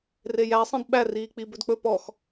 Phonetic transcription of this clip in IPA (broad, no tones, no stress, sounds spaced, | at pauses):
r e j æ sˤ ĩ d ɓ æ r iː k͡p i b ɵ d k͡p ɵ p ɔ x